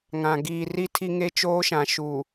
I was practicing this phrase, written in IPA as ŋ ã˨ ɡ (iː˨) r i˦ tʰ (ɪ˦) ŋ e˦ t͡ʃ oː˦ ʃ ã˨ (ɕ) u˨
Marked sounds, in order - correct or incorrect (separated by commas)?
correct, incorrect, incorrect